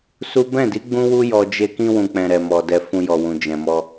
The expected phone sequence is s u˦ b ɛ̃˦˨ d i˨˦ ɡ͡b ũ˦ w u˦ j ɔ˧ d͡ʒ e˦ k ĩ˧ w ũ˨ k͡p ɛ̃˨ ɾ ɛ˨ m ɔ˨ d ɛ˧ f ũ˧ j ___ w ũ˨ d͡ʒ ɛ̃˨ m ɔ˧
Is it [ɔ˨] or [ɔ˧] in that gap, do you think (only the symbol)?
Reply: ɔ˨